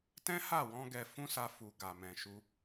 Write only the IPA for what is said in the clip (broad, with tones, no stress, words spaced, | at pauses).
tɛ̃˦ha˦˨wɔ̃˧ ɡɛ˧ fũ˦sa˧fu˨ ɡa˨mɛ̃˨ʃu˧